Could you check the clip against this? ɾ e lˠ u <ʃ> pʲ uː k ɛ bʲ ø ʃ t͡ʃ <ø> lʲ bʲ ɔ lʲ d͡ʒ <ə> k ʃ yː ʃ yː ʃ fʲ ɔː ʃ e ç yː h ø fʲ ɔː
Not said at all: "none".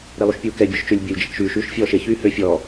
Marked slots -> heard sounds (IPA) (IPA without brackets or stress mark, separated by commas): ʃ, ø, ə